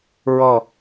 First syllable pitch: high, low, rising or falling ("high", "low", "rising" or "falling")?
falling